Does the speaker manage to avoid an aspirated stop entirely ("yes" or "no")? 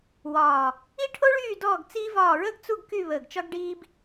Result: no